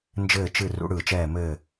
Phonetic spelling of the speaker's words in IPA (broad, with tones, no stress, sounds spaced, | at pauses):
n d͡ʒ ɘː˥˨ t͡ʃ ɨ˥˨ r ṵ˧˥ ɽ ɯ˧˩ t͡ʃ ɛː˥˨ m ɘː˥˨